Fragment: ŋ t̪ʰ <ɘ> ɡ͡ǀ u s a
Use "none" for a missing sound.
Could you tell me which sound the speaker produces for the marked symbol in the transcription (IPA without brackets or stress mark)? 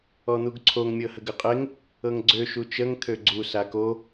ø